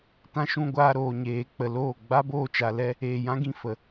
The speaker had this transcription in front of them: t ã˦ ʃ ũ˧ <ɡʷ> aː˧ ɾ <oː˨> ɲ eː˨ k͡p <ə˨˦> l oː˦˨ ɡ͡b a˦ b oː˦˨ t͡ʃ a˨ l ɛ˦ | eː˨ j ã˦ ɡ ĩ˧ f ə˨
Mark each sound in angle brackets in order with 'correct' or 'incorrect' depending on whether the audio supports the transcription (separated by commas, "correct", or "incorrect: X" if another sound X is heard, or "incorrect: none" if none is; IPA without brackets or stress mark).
correct, correct, incorrect: ə˨